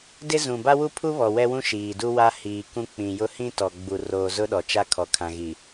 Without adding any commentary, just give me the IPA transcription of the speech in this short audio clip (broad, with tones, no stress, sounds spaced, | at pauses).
d ɪ˦ z ũ˨ b a˦ w u˦ pʰ u˦ β ɔ˨ w ɛ˦ w ũ˦ ʃ iː˨ d u˦ w a˦ h iː˨ k ũ˦ k͡p ĩ˨ j ʊ˦ h ĩ˦ t ɔ˨ ɡ͡b u˨ r oː˨ z ʊ˦ ɗ ɔ˨ t͡ʃ a˦ kʰ ɔ˨ kʰ ã˨ ɣ i˨